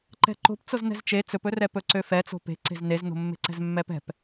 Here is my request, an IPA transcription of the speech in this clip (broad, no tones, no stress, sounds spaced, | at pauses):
ǃ ɛ̤ ǃ o̤ p t͡s o z n ɛ̤ z t͡ʃ e t͡s ɵ p ɵ r ɛ p ɵ ǀ ø f ɛ t͡s o̤ p e̤ ǀ e̤ z n e z n o̤ mː e̤ ǀ ɛ̤ z mː ɛ p ɛ̤ p